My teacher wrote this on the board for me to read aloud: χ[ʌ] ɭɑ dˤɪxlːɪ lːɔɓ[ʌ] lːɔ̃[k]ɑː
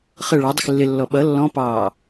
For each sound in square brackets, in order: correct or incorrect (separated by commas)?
correct, correct, incorrect